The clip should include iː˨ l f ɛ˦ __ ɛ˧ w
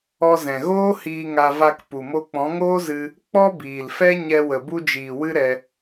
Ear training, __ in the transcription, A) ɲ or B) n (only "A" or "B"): A